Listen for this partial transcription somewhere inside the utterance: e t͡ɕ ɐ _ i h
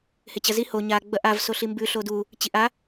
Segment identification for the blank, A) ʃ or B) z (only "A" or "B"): B